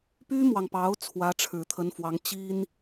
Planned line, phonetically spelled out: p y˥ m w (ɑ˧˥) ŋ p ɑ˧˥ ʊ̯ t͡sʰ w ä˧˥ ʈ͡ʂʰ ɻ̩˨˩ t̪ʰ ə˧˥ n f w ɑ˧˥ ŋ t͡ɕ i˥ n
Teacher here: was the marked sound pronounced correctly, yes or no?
no